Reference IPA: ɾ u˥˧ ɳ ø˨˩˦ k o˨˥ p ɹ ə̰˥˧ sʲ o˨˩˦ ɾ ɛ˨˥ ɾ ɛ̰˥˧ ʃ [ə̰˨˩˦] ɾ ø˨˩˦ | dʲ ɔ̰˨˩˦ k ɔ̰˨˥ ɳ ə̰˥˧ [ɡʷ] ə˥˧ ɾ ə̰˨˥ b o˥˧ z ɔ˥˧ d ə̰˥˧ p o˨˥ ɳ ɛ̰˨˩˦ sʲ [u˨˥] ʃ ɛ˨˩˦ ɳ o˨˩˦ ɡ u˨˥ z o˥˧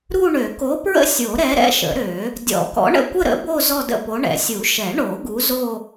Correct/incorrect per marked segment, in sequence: correct, incorrect: kʷ, incorrect: u˨˩˦

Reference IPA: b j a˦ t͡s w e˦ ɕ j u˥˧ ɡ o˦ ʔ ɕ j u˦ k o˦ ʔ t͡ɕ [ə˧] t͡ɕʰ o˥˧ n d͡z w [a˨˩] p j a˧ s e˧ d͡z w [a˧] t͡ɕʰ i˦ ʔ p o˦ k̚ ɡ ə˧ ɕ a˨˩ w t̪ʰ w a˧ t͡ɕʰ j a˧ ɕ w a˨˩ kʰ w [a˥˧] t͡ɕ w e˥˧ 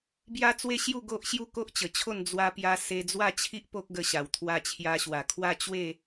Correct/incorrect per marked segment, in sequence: incorrect: ə˨˩, incorrect: a˧, incorrect: a˥˧, correct

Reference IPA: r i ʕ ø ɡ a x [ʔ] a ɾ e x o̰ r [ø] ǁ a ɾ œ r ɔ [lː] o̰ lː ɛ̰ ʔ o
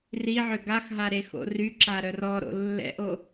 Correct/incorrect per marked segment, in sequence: incorrect: ɦ, incorrect: y, incorrect: ɾ

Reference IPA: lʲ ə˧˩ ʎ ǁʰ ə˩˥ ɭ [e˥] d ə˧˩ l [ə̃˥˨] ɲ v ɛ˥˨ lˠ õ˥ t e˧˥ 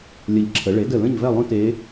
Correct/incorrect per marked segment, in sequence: incorrect: e˩˥, correct

